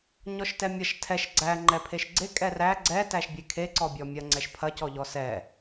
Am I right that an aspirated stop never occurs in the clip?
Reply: no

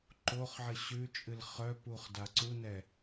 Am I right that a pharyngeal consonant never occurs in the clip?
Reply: no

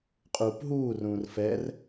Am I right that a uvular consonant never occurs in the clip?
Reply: no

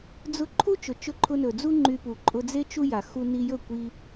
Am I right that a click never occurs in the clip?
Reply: no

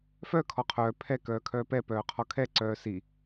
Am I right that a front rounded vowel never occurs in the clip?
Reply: no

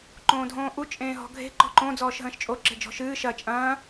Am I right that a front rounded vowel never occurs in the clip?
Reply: yes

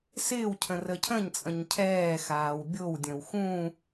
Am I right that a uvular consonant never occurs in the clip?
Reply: yes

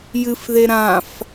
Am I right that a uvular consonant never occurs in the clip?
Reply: yes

